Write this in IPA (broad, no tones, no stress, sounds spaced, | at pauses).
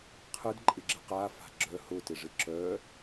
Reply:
qʰ ɯ d ǃʼ ɪ ɡ͡ǁ ɪ q a f a̤ ɡ͡ǁ œ h ʊ t ɪ ʐ ɪ ǁ œ